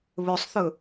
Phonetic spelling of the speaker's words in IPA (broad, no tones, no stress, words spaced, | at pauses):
βɵsˤθɵ